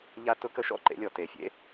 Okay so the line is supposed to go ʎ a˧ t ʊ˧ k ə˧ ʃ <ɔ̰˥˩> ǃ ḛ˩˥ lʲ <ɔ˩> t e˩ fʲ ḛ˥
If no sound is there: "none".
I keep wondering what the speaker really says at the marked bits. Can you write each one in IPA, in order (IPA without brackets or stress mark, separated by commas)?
ɔ̰˥˩, ɔ˩